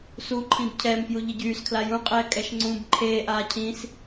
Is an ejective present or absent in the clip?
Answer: present